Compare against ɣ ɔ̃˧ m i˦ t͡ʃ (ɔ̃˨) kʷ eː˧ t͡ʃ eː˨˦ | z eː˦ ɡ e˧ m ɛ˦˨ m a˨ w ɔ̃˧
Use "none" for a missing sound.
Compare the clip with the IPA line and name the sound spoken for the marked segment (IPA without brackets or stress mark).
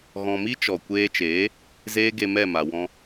ɔ˨